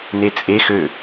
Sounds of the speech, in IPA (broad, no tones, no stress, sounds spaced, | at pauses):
n̪ e t͡sʼ e x ø